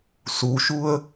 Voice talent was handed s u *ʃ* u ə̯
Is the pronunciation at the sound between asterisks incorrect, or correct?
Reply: correct